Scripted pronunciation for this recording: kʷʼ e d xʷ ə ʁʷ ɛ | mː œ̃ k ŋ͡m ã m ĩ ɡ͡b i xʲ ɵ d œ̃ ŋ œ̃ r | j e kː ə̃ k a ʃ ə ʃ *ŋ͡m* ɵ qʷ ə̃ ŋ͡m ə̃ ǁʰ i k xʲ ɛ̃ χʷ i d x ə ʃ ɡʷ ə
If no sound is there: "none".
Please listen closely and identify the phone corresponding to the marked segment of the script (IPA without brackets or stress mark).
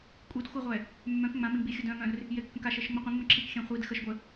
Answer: ŋ͡m